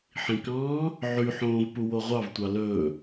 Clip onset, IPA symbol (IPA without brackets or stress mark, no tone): ħ